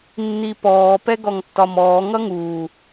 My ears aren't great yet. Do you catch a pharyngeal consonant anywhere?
no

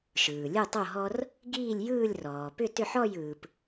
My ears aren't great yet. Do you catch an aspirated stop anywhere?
no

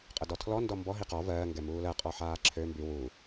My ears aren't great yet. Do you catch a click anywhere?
yes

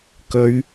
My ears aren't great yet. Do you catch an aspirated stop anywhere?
no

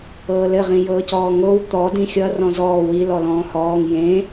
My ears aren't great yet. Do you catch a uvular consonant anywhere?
yes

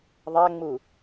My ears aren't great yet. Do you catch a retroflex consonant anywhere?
no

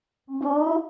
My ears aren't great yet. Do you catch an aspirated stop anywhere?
no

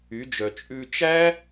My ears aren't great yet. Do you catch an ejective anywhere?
yes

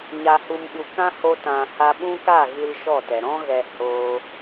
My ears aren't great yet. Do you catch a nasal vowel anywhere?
yes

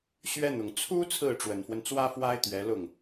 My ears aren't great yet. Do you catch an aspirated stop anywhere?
yes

